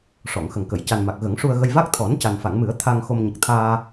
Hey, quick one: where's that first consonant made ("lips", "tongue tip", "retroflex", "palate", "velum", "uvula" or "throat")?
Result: retroflex